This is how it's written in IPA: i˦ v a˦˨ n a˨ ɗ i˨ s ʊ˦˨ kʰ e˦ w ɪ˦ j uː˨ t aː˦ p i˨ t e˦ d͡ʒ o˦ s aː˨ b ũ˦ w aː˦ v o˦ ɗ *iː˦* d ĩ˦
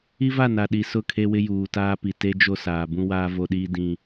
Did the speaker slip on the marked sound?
no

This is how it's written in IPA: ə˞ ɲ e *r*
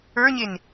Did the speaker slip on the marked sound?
yes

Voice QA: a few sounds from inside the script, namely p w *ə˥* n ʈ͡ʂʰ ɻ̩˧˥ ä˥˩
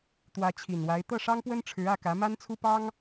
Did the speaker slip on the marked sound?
no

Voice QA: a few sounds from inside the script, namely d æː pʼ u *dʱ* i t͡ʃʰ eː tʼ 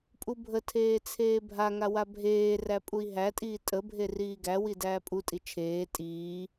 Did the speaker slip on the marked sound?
yes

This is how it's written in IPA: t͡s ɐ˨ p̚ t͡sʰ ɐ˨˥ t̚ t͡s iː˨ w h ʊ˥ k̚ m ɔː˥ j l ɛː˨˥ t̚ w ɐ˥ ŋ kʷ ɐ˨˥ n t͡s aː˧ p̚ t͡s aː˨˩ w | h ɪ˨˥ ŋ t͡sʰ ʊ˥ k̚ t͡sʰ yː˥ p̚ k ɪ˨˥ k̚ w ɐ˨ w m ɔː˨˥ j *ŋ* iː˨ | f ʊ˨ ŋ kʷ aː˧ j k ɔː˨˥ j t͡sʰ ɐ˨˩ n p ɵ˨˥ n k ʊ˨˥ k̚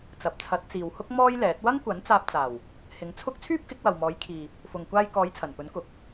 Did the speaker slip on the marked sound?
yes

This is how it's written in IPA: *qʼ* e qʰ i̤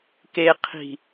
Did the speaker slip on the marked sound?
yes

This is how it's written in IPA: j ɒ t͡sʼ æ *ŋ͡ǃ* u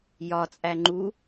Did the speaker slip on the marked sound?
no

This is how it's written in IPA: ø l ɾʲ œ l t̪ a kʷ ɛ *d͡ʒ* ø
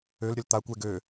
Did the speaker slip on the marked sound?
yes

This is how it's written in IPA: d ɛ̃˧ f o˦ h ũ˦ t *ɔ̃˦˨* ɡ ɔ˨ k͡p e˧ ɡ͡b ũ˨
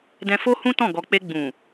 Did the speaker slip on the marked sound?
no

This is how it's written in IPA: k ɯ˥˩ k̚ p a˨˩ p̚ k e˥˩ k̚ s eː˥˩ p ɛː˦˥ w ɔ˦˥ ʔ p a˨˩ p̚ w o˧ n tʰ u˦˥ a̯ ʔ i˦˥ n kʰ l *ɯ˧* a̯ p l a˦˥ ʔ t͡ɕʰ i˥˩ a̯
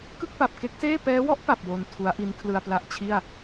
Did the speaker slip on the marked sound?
no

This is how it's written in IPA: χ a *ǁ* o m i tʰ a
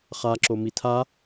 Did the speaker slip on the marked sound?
no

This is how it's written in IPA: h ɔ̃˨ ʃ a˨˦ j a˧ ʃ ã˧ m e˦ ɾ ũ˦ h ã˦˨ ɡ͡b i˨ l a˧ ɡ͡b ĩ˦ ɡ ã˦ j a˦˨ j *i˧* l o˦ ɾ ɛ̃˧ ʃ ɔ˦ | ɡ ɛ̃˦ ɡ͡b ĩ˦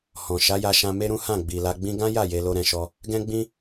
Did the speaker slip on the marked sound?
yes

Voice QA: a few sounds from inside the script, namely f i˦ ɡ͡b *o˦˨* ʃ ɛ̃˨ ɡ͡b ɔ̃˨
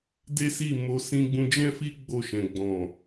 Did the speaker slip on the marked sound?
no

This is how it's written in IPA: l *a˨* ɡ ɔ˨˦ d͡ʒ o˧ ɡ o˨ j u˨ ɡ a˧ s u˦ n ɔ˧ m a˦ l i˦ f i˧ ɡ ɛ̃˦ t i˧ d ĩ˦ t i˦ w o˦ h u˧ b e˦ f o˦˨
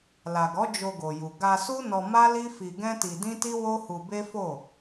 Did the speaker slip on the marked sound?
no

